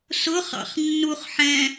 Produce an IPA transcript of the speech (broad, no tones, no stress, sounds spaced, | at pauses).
s ʊ χ ɑ̰ χ nː u χ ħ ɛ̃